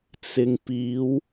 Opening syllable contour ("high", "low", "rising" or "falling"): low